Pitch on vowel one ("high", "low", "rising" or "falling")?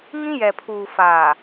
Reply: high